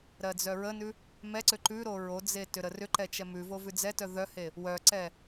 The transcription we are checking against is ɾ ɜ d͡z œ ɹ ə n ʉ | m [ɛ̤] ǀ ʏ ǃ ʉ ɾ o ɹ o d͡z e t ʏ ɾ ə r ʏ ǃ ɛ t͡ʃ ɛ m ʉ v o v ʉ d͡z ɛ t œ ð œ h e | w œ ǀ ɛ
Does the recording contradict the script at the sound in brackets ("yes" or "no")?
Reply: yes